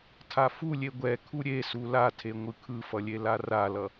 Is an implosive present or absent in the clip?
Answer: absent